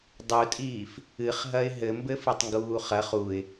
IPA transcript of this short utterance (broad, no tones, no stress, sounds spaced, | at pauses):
dˤ u tʼ iː f | ɨ χ ɦ ɐ ɪ̯ ɦ ɘ m b ɘ f ɨ tˤ ŋ ɡ uː χ ɐ χ u ɪ̯